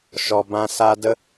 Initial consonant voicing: voiceless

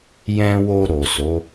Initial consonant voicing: voiced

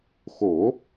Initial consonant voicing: voiceless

